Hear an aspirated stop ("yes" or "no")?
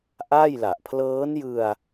yes